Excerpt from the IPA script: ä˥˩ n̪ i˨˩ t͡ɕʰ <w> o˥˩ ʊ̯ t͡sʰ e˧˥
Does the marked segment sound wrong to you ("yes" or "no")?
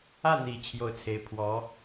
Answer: yes